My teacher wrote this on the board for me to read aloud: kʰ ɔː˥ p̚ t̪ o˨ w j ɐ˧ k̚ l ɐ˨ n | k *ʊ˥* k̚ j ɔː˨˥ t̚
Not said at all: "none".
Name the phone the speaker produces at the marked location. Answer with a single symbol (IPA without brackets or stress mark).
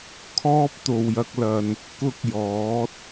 ʊ˥